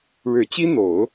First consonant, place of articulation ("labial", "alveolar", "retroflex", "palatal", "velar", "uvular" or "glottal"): retroflex